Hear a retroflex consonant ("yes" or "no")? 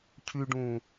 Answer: yes